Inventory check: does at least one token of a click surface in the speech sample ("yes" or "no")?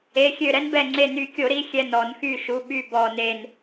yes